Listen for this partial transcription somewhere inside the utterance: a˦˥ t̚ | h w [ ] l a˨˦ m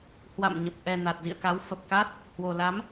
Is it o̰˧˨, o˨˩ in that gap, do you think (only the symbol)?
o˨˩